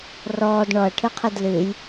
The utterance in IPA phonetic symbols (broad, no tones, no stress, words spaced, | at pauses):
rɔːd ɳɔɐ̯ʈʰɨqʰid lɨj